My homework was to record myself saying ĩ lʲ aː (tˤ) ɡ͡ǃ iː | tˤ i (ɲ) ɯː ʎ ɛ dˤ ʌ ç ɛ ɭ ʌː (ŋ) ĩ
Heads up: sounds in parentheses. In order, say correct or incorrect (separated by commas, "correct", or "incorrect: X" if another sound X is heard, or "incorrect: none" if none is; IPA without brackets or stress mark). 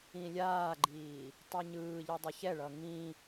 incorrect: none, correct, correct